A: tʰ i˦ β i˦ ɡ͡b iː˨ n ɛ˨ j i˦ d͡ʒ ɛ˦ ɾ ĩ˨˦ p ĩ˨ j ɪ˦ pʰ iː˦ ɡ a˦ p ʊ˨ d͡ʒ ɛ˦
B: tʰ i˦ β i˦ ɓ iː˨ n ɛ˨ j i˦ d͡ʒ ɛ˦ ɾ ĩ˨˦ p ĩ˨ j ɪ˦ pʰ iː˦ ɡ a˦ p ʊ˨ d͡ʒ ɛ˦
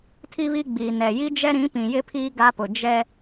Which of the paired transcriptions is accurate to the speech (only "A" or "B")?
A